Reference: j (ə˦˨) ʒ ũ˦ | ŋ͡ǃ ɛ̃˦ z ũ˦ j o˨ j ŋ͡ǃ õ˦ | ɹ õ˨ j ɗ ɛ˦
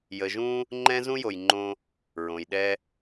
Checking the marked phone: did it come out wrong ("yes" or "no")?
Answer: yes